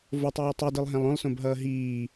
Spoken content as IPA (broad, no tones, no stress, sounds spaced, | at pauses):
v o tˤ ɯː tˤ u d ɯ lˠ ɦ ɛ̃ lˠ õ lˠ s õ b ɦ ʌː ɦ iː